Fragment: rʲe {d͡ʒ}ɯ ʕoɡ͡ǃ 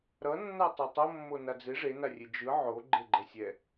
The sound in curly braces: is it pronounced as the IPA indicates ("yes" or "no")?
yes